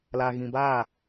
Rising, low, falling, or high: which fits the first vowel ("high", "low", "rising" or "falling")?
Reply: low